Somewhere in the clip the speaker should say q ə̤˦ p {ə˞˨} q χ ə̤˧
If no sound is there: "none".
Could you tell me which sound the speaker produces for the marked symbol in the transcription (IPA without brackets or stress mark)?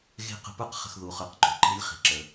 ə˞˦